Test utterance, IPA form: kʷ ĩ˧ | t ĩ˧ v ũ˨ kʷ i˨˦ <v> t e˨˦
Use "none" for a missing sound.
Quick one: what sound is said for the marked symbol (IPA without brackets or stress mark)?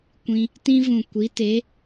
none